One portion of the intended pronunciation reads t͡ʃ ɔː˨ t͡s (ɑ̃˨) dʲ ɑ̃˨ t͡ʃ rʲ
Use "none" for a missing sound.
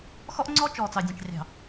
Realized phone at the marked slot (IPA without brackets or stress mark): ɑ˨